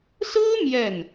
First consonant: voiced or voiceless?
voiceless